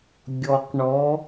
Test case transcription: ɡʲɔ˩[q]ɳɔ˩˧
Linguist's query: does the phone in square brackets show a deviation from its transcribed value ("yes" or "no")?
no